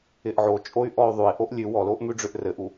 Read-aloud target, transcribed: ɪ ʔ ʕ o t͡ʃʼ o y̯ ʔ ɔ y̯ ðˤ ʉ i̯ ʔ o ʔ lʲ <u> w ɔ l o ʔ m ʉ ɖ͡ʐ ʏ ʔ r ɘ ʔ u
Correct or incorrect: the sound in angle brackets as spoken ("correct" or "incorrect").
incorrect